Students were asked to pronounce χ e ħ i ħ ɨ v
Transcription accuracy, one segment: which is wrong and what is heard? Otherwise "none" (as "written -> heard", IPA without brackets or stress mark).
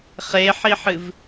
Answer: none